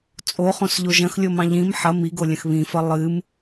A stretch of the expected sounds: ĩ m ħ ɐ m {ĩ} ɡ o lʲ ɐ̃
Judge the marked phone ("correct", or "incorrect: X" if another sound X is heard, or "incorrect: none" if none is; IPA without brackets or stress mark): incorrect: i